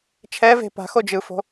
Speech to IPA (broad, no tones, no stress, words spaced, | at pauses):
t͡ʃʰɛ ve̤ pa̤xo d͡ʒɯfo̤